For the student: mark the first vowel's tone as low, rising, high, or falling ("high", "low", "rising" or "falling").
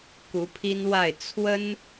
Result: rising